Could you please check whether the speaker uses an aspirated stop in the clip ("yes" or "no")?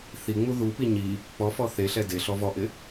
no